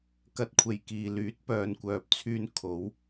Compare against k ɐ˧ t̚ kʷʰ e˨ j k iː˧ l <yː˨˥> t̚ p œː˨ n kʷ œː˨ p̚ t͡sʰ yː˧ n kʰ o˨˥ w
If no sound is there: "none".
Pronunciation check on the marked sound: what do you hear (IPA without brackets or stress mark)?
yː˨˥